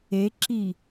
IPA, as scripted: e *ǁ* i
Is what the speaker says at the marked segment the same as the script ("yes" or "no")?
yes